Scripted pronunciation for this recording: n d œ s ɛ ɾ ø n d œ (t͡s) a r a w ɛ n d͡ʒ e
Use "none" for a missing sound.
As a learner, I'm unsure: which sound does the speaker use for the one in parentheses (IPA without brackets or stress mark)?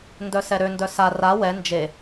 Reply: s